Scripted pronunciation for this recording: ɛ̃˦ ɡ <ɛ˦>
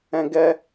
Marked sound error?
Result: no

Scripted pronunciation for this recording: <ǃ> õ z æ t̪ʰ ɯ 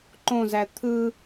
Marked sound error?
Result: no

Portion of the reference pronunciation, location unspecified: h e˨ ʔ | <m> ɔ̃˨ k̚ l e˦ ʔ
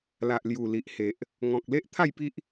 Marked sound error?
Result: yes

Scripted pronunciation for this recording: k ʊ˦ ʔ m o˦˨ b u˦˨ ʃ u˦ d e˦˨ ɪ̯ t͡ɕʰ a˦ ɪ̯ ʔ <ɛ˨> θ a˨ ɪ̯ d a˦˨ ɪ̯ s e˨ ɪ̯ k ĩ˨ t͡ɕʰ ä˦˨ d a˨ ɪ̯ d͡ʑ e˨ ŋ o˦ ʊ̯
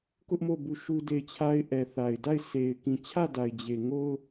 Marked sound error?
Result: no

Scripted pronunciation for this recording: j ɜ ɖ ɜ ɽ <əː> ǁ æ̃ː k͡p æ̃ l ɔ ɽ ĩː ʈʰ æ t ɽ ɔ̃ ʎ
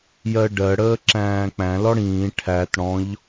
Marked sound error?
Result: no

